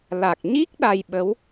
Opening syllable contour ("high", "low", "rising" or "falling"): low